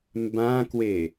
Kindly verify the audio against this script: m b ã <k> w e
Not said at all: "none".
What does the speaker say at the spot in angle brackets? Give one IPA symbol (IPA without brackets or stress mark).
k